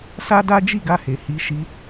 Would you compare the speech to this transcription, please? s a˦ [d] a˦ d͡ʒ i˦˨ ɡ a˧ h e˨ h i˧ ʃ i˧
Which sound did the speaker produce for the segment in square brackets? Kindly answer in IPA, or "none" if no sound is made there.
d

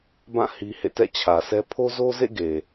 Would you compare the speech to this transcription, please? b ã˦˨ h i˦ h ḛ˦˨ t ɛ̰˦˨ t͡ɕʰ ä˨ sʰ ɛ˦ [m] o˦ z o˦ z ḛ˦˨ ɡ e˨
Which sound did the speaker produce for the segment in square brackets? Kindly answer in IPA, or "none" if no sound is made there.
pʰ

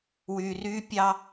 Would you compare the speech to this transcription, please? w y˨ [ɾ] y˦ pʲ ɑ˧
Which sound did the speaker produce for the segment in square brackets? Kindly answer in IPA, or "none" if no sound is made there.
r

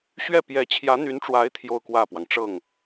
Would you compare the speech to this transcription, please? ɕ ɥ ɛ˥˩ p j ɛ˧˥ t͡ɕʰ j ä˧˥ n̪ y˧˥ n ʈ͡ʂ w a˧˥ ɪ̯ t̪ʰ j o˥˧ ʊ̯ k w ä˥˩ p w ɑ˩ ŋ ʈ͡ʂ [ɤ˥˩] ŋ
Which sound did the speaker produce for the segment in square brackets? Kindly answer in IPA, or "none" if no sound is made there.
ɤ˥˩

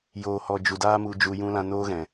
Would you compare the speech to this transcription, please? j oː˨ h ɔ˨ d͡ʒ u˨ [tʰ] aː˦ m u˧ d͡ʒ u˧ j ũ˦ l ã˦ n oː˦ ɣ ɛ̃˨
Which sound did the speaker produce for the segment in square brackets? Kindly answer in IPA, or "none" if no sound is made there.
d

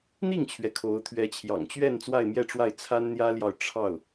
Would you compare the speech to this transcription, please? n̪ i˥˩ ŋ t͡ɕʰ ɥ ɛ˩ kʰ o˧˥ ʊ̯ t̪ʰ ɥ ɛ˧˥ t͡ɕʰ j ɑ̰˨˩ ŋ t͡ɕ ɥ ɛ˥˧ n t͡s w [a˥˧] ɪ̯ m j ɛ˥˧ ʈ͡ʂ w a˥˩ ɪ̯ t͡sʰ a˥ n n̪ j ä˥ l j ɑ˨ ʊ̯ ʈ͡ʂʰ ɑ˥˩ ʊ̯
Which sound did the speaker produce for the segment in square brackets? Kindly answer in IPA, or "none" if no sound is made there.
a˥˧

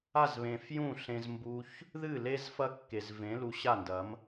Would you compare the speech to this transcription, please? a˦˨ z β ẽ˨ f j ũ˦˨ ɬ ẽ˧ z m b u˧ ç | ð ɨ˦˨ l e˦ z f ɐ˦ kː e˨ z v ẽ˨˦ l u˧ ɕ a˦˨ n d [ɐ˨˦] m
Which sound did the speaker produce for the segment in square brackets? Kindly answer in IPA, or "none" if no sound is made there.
ɐ˨˦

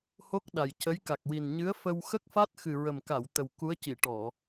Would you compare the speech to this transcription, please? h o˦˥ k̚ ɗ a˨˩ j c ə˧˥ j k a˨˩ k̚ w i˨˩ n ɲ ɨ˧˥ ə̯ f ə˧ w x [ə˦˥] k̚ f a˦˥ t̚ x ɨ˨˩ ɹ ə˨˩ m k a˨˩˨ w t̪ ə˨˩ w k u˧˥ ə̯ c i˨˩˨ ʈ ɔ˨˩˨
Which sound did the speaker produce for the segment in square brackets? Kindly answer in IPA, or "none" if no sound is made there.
ə˦˥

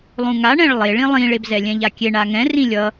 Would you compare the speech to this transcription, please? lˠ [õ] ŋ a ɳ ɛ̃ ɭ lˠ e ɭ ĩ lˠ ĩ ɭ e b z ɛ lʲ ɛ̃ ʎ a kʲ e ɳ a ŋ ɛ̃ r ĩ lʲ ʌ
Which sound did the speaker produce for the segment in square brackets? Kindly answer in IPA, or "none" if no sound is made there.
ũ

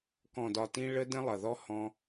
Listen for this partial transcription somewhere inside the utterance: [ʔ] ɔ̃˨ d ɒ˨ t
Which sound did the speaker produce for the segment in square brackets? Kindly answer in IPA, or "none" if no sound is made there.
k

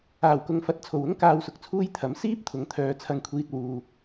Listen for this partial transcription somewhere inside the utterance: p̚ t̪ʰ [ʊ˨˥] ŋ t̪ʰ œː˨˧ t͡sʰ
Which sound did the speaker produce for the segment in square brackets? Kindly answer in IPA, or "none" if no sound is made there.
ʊ˨˥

